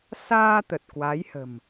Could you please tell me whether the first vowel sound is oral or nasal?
oral